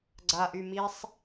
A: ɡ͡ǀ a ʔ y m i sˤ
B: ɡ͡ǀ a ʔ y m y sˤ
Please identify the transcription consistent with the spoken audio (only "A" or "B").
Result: A